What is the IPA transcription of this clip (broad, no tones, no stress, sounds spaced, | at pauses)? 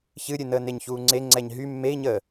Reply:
ç ɨ ɾʲ ɨ n əː n e ɲ ç uː ŋ͡ǀ e ŋ͡ǀ ɛ ɲ ɦ y mː e i̯ ɲ əː